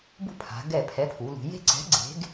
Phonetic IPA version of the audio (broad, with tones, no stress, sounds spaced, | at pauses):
b ṳ˥˨ pʰ a̤˩˧ ɡ ɛ˧˩ pʰ ɛ˨˥ pʰ u˩˧ l ṳ˩˧ j e̤˥˨ ǀ ɛ̤˨˥ ɡ͡ǀ e̤˨˥ ɡ